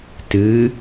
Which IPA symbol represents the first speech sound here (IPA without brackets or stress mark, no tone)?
t